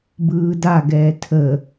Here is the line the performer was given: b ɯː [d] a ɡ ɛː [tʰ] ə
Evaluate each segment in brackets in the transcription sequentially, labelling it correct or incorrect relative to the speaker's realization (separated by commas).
correct, correct